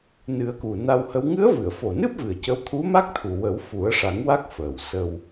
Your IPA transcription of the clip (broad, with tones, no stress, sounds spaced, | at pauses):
n ɨ˨˩˦ ə̯ k u˨˩ n a˧ w h ə˧˥ w ŋ ɨ˧˥ ə̯ v ɨ˨˩˨ ə̯ f o˨˩ n ɨ˦˥ p̚ v ɨ˨˩ ə̯ c ə˧˥ w t̪ʰ u˧˥ m a˦˥ k̚ t̪ʰ u˨˩ w ə˨˩˦ w f u˨˩˦ ə̯ ʂ a˨˩˦ ŋ w a˦˥ k̚ f əː˨˩ w s ə˧ w